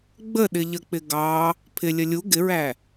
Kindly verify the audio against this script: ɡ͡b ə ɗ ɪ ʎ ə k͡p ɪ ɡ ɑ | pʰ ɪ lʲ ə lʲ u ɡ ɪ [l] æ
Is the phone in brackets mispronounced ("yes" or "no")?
yes